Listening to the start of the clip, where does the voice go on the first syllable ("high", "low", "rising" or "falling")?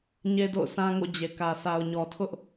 high